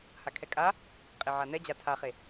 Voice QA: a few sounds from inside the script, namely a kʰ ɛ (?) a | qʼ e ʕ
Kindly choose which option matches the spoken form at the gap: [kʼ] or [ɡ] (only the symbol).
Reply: kʼ